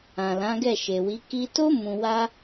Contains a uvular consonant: no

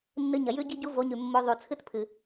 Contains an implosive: no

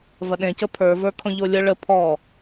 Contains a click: no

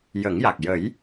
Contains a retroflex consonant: no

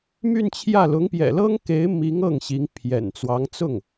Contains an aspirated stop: yes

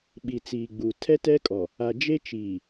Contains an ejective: yes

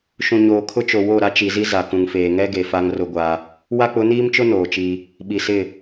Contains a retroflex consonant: no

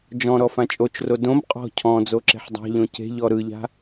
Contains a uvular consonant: yes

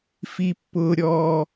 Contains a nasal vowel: no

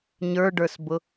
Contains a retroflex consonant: yes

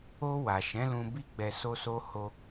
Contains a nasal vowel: yes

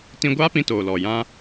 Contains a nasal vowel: yes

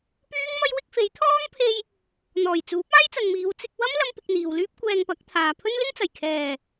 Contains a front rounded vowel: yes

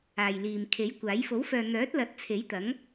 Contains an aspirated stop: yes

